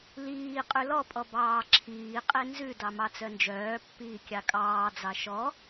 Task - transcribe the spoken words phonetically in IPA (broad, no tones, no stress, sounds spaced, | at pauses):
l iː qʼ ʉ l ɔ pʼ ɔ b ɑː ǁʰ iː qʼ e n z ʉ d ɑ m ɑ t͡s œ n d͡ʒ œː pː iː kʲ ɑ kʼ ɑː d͡z ɑ ʃ ɔ